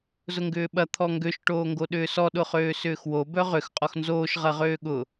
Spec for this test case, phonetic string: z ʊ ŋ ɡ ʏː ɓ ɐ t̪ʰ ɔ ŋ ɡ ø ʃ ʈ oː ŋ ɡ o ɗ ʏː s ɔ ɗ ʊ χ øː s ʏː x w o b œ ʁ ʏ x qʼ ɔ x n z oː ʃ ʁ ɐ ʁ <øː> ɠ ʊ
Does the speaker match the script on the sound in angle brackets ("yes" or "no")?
yes